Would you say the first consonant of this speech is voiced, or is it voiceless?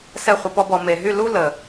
voiceless